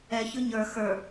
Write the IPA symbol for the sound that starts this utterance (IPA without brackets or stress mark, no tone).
ɛ